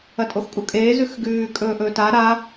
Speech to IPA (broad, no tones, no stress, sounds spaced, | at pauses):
ɐ tʼ o x kʼ u kʼ eː z ʉ x ɡ ʉː kʼ ɵː ʔ ɵː t a ɾ a